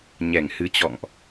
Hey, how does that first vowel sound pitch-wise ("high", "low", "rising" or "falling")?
low